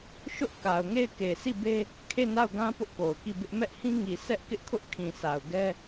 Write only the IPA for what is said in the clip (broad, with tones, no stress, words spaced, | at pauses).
ʃʊ˦ʔ ka˨ʊ̯ŋe˦˨ɪ̯ke˨ si˦˨be˦ | kʰe˦˨na˦˨ʊ̯ɡã˦ pʊ˦ʔko˨ʊ̯ki˦˨bɪ˦ʔ mɛ˦ʔhĩ˦ŋi˨ sʰɛ˦ʔkɪ˦ʔkʰʊ˦ʔ kʰĩ˨sa˨ʊ̯ ɡɛ˦